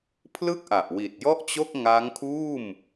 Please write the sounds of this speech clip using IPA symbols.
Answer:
pʰ l ɯ˥˩ k̚ ʔ a˨˩ ʔ w i˨˩ t̚ j ɔ˥˩ ʔ t͡ɕ o˥˩ k̚ ŋ a˦˥ ŋ kʰ uː˥˩ m

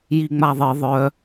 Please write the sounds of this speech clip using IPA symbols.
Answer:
j i ŋ͡m a ðˤ ɨ ðˤ œ

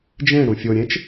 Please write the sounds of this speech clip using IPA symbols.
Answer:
d͡ʒ ẽ ɽ ũ fʲ o ɾʲ ẽ t͡ʃ

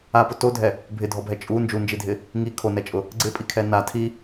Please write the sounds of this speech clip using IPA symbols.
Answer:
a p ʊ t o dʱ ɛ | bʱ ɪ dʱ ɔ bʱ ɛ t͡ʃʼ u n d͡ʒ u n d͡ʒ i dʱ ɪ | ŋ i kʰ o n ɛ t͡ʃʼ ʊ | ɡ͡ǀ ɪ pʼ i kʰ ɛ n a tʰ i

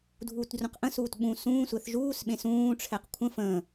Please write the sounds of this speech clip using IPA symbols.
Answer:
dʱ uː t d r ũ q ʔ ə̃ s uː t ɓ ũ s ũː sʷ ɛ θ ʒ uː s ɓ ẽ s ũː ʈ͡ʂʰ ɛ q kʷʰ ə̃ f ə̃ː

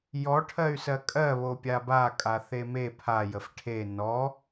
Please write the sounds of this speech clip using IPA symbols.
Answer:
j ɔ ʈʰ ɜ y̯ s ɜ kʼ ɜ β o pʲ a b a kʼ a θ e m e pʰ a j ə f ʈʰ e n ɔ

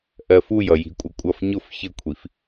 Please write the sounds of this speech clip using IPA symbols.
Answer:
ʔ ɜ f u j ʌ j i̤ kʷʼ ʌ kʷʼ ʌ f ɲ ʊ f ç ə kʷʰ i f

